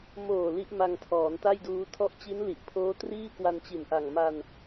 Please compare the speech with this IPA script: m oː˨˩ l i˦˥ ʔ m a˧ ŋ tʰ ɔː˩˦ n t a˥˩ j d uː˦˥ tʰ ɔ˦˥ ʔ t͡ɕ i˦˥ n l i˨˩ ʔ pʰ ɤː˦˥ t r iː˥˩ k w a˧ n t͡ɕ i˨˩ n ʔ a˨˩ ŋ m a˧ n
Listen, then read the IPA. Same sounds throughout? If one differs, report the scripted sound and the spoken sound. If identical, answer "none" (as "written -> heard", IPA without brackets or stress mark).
ɤː˦˥ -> oː˦˥